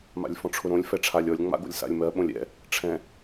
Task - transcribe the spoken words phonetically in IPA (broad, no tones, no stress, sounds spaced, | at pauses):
m a̰ lʲ f ɔ̃ ʈ͡ʂʰ ʊ ɾ õ lʲ f ɛ ʈ͡ʂʰ a lʲ ɔ lʲ ŋ͡m a̰ ɡ o̰ lʲ s a̰ lʲ m ɜ ɓ õ lʲ ɛ̰ | ʈ͡ʂʰ ɛ̃